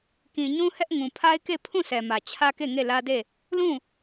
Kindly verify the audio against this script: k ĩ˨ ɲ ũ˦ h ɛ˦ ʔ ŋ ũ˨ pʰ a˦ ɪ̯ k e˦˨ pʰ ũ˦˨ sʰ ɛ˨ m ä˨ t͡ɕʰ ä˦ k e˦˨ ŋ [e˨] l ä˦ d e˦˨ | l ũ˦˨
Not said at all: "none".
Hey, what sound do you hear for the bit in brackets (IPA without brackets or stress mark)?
e˦˨